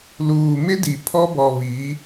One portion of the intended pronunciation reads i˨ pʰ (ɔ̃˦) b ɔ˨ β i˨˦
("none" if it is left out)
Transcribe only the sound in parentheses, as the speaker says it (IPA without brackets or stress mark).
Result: ɔ˦